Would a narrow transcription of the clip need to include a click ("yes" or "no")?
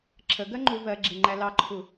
yes